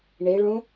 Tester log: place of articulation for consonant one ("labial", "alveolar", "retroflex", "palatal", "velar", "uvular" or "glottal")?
retroflex